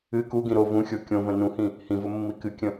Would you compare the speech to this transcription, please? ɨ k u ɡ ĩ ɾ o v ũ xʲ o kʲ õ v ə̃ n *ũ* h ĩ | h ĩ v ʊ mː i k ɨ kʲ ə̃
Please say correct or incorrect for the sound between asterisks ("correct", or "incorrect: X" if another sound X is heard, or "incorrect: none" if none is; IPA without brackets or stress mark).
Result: correct